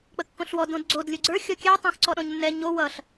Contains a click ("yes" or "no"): yes